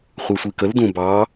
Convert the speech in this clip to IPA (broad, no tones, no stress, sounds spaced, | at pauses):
χʷ ɛ sʷ i k ə l d ũ b ɑ